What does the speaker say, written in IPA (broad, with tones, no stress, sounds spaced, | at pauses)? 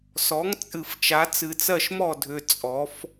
s ɔ˩˥ ŋ t͡sʼ ɨ˨˩ f t͡ʃ a˩˥ t͡s ɨ˨˩ t͡s ɜ˥˩ ʃ m ɔ˥˩ dʱ ʏ˨˩ t͡sʼ ɔ˩˧ f